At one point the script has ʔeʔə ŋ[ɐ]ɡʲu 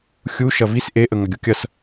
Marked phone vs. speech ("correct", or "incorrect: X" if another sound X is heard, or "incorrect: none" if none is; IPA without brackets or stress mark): correct